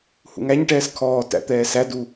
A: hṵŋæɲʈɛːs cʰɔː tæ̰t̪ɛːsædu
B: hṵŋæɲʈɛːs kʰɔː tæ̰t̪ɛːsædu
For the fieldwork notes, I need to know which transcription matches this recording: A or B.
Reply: B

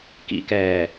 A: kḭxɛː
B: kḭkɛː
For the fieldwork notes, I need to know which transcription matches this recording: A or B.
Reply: B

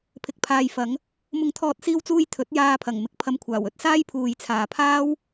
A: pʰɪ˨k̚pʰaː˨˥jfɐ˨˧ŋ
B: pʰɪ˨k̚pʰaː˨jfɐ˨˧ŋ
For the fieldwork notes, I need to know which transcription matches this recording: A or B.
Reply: B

